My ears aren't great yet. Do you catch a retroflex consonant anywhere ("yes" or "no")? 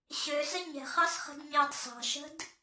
no